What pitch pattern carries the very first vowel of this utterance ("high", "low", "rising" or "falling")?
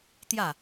falling